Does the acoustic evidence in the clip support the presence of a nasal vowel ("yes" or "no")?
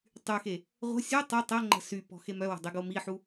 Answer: no